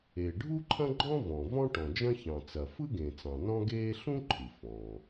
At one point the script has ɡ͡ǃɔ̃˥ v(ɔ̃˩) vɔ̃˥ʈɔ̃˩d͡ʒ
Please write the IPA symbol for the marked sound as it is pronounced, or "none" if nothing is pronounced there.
ɔ̃˩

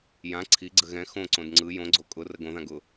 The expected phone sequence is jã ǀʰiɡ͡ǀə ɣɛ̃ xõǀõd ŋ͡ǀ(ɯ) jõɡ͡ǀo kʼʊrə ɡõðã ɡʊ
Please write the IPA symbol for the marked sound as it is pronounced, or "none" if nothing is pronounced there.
ɯ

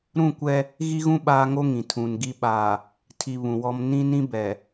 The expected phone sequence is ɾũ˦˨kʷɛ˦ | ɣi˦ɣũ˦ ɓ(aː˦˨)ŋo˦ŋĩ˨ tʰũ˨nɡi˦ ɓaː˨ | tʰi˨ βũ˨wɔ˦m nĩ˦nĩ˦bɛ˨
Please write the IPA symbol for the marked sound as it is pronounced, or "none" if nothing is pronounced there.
aː˦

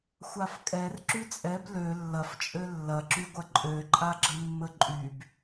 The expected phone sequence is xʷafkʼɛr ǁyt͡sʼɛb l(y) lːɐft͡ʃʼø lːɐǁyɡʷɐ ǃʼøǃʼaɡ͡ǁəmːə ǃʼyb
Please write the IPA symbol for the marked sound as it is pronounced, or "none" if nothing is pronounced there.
ø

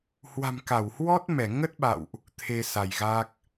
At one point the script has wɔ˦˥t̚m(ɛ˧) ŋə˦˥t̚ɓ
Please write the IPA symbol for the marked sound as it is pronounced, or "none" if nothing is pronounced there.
ɛ˧˩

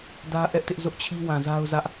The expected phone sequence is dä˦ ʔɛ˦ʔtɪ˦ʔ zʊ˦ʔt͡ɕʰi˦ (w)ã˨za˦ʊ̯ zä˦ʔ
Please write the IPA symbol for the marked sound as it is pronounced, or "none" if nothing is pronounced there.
w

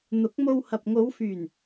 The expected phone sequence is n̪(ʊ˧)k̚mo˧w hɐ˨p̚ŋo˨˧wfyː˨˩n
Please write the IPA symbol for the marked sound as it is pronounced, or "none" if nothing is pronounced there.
ʊ˨˥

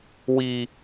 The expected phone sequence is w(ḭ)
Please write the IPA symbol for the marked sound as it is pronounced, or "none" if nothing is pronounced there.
i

